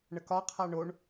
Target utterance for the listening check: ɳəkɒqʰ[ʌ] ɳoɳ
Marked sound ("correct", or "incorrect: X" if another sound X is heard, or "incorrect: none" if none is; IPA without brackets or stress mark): incorrect: a